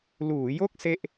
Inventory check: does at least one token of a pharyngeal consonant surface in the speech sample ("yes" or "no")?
no